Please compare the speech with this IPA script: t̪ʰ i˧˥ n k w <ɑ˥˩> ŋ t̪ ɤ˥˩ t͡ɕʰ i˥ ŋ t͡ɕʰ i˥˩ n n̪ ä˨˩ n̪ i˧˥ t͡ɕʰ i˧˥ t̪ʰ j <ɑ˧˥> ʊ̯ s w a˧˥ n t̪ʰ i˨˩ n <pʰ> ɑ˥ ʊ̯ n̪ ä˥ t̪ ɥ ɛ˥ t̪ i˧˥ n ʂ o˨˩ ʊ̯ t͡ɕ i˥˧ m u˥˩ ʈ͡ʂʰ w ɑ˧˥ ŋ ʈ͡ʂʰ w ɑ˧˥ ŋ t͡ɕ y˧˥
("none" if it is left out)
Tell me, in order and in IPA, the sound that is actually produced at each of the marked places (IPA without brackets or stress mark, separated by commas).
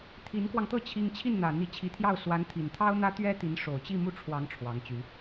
ɑ˧, ɑ˥˩, t̪ʰ